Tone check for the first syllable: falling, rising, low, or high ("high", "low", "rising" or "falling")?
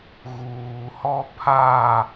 low